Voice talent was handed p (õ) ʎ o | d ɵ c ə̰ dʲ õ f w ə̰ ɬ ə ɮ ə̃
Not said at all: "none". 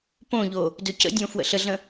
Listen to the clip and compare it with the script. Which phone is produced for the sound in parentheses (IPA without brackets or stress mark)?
õ